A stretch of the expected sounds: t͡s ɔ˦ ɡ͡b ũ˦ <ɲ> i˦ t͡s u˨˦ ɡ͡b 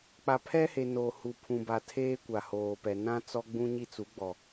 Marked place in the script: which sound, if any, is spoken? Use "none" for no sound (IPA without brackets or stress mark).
ɲ